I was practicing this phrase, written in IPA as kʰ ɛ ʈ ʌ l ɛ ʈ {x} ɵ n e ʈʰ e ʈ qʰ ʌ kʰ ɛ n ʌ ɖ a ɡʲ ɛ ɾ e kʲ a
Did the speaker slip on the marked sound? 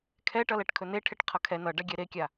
yes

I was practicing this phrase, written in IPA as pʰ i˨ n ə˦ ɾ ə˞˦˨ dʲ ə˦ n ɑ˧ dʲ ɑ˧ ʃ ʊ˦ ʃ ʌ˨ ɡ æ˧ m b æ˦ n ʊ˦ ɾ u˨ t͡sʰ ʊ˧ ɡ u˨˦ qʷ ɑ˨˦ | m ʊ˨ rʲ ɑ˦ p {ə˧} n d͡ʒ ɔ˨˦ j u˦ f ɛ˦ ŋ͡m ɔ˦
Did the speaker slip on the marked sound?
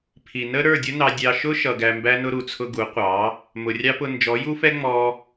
yes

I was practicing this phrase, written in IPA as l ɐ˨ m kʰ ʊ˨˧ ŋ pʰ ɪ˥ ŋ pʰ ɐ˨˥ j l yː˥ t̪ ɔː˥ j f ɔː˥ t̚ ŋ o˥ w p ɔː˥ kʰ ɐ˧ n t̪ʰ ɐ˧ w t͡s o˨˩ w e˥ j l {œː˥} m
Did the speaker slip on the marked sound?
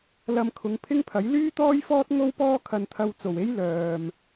yes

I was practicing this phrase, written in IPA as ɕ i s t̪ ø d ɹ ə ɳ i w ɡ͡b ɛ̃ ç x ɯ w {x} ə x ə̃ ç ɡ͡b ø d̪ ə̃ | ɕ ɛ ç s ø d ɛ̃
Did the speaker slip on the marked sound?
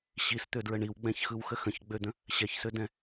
no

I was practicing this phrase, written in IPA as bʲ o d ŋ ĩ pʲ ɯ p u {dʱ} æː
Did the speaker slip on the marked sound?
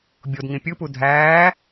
no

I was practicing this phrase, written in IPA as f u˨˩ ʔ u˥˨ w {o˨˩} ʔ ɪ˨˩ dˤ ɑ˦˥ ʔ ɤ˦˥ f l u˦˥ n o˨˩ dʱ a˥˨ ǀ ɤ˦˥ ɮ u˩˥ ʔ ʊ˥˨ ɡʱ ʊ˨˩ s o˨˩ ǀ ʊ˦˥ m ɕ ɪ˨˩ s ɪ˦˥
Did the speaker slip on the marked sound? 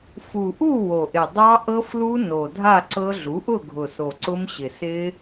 no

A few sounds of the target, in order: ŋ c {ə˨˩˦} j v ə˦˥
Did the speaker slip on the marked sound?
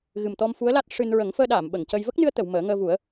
yes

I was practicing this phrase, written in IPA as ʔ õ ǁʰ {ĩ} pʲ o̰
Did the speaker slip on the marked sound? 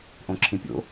no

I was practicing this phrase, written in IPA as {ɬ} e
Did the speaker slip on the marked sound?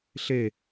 no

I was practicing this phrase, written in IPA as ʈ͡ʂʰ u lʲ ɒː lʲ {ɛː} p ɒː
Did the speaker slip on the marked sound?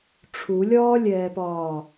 no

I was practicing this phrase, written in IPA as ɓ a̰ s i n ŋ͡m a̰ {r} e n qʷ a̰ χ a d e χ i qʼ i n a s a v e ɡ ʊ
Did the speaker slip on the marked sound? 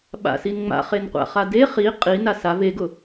yes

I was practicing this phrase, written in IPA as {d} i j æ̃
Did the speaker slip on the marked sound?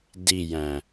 no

